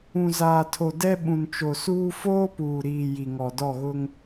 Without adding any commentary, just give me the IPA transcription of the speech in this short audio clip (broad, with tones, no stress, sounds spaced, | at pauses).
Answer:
ũ˨ z aː˨ tʰ o˨ d ɛ˦ ɓ ũ˨ n t͡ʃ o˨ s uː˦ f oː˦ p uː˨ ɾ iː˨ j i˨ ŋ ɔ˨ d ɔ˦˨ ɣ ʊ˦ ŋ